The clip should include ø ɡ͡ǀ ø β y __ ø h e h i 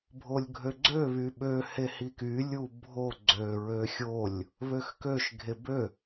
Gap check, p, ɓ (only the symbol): ɓ